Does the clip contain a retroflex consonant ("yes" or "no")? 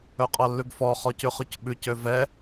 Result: no